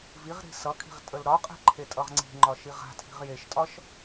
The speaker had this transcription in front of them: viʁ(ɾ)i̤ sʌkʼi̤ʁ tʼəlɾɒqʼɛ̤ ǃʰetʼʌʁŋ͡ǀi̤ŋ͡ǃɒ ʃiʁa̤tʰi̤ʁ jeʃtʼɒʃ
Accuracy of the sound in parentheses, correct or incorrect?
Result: correct